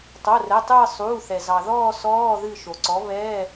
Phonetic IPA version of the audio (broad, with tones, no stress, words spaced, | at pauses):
tˤo˩˧˩rɛ˩˧˩tˤɨː˦˨ sˤuː˩˧˩θɛ˩ zɑ˩ðɔː˦˨ sɔː˧˥˧ðɨ˦˨ ʃo˩ǀɔ˨˥ βɛː˧˥˧